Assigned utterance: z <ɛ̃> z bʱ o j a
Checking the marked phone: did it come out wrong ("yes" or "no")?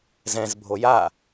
no